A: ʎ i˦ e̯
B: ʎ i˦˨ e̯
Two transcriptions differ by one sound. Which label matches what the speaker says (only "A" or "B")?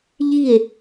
B